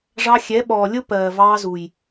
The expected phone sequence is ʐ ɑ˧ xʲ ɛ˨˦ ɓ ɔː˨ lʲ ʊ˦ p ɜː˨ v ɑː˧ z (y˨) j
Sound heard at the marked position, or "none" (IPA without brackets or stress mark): u˨